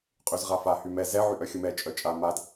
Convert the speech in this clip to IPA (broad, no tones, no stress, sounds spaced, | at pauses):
qʼ y z ʁ a f a h y m ɛ z ɛ ʕ y ʔ œ xʲ u m ɛ t͡ʃʼ œ t͡ʃʼ a m a d